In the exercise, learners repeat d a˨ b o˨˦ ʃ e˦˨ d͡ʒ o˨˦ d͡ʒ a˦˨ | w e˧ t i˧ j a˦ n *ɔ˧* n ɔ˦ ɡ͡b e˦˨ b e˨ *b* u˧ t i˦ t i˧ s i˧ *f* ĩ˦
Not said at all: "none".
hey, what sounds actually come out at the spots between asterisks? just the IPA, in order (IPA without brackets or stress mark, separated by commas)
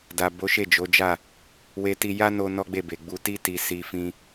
o˧, ɡ͡b, f